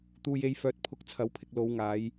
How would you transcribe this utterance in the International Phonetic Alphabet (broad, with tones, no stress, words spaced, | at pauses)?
t̪uː˧je˧j fœː˨t̚pʰʊ˨˥k̚ t͡sʰɐ˨˥wpʰɪ˧k̚ lo˨˧w ŋaː˨˧j